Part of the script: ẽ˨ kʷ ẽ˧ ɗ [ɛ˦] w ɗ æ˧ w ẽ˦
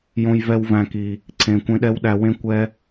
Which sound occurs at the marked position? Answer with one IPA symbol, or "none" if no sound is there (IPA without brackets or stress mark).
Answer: ɛ˦